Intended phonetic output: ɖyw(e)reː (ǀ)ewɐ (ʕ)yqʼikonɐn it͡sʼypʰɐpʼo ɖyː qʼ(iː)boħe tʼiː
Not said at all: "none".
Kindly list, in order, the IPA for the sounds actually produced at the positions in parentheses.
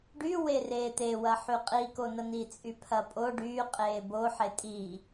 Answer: e, t̪, ħ, eː

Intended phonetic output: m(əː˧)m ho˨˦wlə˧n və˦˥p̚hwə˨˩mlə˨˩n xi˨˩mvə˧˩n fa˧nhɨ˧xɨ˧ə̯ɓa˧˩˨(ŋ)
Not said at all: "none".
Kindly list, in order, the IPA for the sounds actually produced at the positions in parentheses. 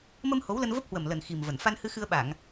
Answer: ə˧, ŋ

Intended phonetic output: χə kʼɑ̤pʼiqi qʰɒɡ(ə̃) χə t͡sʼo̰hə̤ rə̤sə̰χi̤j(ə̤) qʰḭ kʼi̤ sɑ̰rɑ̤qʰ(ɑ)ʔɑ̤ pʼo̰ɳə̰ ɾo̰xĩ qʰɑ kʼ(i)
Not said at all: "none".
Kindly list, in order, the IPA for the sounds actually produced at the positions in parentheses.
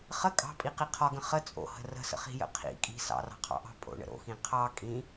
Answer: ə̃, ə̰, ɑ̰, ĩ

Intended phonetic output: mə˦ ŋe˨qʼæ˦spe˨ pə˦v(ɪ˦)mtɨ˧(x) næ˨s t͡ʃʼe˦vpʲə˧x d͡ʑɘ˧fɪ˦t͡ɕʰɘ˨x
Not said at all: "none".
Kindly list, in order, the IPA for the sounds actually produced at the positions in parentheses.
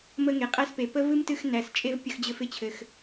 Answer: ɨ˦, x

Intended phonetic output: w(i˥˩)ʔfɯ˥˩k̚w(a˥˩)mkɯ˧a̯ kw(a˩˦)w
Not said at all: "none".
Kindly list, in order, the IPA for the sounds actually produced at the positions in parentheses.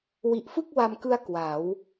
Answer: i˨˩, a˧, a˩˦

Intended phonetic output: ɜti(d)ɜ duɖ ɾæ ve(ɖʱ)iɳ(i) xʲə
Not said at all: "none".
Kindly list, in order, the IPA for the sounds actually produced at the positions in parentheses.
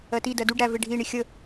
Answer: d, ɖʱ, i

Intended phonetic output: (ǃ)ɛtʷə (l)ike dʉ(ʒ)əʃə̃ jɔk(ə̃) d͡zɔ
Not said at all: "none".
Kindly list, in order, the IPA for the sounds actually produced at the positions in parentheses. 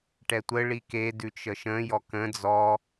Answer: ʈ, ɭ, t͡ʃ, ə̃

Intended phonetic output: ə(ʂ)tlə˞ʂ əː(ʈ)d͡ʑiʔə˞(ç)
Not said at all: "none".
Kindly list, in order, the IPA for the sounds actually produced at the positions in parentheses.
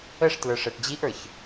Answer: ʂ, ʈ, ç

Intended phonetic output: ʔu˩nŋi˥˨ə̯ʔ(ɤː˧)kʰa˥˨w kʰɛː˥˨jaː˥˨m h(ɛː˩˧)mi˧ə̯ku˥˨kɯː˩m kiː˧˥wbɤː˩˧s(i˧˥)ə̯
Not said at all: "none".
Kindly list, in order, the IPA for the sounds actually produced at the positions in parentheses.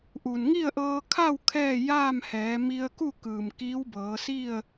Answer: ɤː˧, ɛː˩˧, i˥˨

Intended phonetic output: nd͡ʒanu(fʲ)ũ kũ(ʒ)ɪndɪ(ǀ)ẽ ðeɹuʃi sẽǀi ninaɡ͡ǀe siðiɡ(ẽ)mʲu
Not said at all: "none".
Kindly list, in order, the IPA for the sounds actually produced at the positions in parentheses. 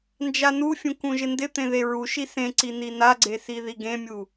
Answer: fʲ, ʒ, t̪, ẽ

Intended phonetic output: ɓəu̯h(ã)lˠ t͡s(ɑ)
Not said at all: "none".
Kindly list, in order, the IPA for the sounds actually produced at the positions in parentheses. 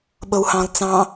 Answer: ɑ̃, ɑ̃

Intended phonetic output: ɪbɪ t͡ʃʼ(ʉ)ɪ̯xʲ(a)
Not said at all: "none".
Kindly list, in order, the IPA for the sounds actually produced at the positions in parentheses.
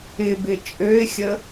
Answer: ø, ə

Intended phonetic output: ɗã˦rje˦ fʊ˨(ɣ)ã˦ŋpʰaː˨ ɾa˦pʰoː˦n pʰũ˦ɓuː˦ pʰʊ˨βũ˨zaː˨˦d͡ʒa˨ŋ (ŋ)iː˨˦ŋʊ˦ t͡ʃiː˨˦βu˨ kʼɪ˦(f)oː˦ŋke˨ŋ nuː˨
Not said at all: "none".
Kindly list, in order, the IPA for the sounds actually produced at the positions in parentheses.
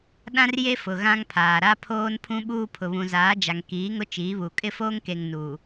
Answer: ɣ, k, f

